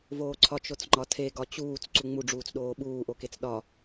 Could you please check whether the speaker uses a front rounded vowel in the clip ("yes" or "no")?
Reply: no